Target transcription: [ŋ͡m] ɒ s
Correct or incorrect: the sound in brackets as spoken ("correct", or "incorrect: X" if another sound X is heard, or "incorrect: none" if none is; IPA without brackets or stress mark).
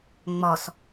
correct